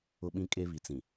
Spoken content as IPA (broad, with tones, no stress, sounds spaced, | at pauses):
ʊ˦ ɓ ĩ˦ kʼ e˦ β i˨ t͡s ĩ˨